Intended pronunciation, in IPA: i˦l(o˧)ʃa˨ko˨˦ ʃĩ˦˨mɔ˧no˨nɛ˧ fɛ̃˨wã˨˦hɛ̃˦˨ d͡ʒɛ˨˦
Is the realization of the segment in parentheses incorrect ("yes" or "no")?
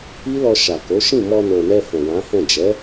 yes